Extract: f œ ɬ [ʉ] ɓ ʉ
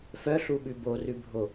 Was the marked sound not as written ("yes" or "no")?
yes